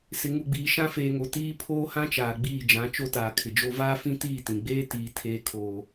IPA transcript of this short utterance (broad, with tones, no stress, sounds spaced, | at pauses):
s ɪ˨ ŋ u˨ ɡ͡b iː˨ ʃ ã˦ f eː˨ ŋ o˨ t iː˦ pʰ oː˦ h ã˦ t͡ʃ aː˨ ɡ͡b iː˦˨ d͡ʒ ã˨˦ t͡ʃ o˦ t aː˨ kʰ ɪ˨ d͡ʒ o˦ v aː˦ f ĩ˦ t iː˦˨ t ĩ˨ ɡ͡b eː˦ t iː˨ tʰ eː˦ kʰ oː˦